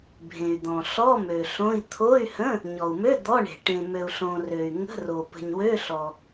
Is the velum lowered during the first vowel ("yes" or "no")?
yes